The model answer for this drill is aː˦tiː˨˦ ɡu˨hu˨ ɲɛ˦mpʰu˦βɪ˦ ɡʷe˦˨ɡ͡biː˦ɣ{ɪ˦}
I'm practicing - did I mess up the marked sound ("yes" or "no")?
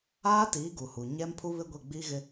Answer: no